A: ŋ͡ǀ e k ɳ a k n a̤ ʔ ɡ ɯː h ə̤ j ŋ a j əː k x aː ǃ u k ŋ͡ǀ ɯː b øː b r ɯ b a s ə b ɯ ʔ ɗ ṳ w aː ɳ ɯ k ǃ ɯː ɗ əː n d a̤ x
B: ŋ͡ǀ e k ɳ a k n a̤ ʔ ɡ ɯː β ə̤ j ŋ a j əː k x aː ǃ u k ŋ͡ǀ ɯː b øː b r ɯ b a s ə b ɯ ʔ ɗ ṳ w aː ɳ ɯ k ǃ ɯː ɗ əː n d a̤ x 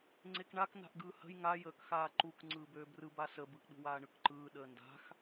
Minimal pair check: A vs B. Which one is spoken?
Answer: A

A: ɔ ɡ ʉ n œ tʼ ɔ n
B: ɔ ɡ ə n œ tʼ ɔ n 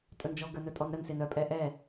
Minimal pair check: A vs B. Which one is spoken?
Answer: B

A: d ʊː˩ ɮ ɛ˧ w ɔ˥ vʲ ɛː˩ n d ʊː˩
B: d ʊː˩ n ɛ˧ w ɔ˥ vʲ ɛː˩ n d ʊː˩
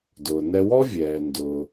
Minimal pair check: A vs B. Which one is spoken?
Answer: B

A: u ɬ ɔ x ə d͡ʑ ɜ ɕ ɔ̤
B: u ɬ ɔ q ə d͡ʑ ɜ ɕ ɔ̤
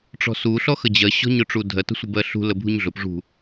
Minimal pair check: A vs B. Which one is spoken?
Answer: A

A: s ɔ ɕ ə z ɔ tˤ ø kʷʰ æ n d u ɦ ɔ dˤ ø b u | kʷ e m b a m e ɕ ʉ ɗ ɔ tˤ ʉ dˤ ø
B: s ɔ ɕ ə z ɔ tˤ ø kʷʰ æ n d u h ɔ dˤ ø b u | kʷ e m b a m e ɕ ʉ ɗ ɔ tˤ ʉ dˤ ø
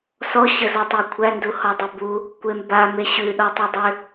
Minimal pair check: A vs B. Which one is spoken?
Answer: B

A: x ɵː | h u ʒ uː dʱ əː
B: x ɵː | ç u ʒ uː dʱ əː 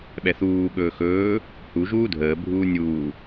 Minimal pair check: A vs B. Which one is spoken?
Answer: A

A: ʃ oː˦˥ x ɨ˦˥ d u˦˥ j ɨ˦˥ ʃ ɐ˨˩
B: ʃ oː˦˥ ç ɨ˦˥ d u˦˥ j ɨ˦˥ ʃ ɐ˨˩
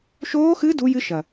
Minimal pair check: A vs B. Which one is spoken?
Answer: A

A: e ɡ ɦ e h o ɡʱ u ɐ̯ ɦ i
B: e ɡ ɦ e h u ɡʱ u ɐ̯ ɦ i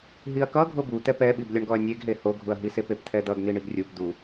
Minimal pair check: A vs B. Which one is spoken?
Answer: A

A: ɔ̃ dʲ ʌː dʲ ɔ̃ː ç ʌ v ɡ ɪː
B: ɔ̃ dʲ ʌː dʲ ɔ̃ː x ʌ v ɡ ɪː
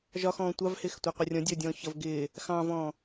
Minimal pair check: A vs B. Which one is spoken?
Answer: A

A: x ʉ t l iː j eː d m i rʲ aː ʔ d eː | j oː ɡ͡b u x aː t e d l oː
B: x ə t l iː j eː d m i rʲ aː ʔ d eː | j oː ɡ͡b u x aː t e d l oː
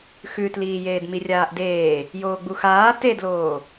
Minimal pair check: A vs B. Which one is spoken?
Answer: A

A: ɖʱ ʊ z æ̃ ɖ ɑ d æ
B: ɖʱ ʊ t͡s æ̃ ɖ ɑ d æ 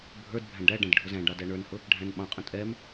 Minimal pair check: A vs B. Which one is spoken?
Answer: A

